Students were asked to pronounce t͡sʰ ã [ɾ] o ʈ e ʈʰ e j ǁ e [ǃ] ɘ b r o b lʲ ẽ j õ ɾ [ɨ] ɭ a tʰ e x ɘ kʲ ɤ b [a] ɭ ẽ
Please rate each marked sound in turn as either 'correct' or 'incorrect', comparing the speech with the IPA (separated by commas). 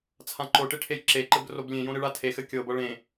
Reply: incorrect, correct, correct, incorrect